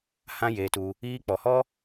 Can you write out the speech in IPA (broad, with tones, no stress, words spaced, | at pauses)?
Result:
hã˦jeː˧tu˧ | iː˧k͡pɔ˨hɔ˦